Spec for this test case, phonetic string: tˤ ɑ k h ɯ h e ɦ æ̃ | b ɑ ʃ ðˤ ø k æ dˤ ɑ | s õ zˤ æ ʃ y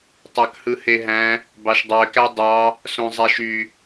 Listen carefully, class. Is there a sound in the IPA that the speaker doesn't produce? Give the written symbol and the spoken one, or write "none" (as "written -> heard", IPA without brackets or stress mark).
ðˤ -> dˤ